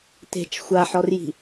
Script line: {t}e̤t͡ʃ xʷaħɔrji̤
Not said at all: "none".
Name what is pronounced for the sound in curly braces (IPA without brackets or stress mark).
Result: t